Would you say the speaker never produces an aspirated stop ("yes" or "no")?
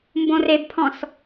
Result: no